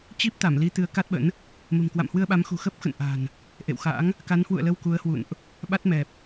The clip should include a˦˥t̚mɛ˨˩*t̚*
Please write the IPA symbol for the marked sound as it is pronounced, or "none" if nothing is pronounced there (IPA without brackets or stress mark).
p̚